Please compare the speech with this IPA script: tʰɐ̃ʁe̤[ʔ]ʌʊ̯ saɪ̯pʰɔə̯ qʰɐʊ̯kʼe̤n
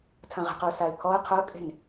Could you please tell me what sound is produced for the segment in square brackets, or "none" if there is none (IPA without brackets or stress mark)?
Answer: q